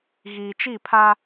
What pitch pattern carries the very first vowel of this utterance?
low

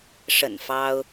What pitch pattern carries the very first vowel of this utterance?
low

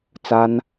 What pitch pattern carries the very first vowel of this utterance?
high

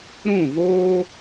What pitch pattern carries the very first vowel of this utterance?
falling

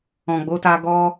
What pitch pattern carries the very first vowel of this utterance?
low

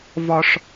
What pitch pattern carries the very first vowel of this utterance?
high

